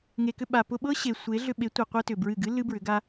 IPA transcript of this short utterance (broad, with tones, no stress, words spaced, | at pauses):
ŋe˨kʏ˧ ɓa˨ pʊ˧ɓɤ˦ ɕe˨ sʷe˨˦ɮʏ˧ ɓe˨˦tʷe˨ qʷɤ˦tʏ˨bɹɨ˦˨ ɡɨ˦ lɨ˦bɹʏ˨˦ɡa˦